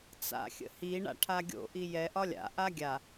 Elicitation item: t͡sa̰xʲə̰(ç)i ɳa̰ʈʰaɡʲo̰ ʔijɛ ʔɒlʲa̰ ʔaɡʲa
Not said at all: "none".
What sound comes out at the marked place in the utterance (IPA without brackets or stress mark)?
h